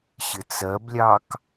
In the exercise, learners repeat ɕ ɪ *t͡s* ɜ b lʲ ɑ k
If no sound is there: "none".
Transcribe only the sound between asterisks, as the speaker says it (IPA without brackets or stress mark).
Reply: t͡s